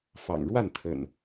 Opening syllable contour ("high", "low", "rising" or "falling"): low